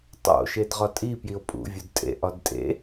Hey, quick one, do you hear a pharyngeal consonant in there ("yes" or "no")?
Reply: no